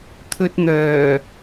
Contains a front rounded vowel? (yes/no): yes